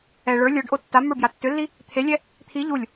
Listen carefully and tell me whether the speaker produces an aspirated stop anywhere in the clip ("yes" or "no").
yes